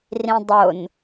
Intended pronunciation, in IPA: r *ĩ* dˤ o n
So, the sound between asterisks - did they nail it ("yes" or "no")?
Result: yes